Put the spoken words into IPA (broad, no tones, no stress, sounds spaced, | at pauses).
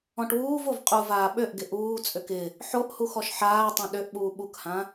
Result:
ɔ̃ ʈ w uː v o v qʼ u v aː ɓ ø ʔ ɡ ɪ ʔ uː t͡sʼ ø k ɪ | ħ o ʔ h u x ɔ ʃ ħ aː tˤ õ ɗ ø ʔ ɓ uː ɓ u k h ã